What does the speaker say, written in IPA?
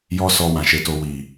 j ɔ˦ s ɔ˧ w ã˨ ʃ e˨˦ t o˧ w i˨

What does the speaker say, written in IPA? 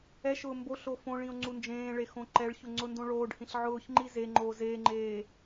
ɛ ʃ ʊː m b o ɬ o f õ ɭ ĩ o̯ ŋ͡ǀ u n d͡ʒ ẽː ɭ e x õ ǃ ɛ ɭ ç ʊ ŋ͡ǀ ʊ n d õ ɭ oː ɖ h ĩ ɬ ʕ ʊː ç ŋ͡ǃ i z e ŋ͡ǃ oː z eː ŋ͡ǃ eː

